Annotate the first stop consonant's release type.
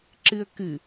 click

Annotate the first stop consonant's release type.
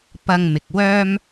plain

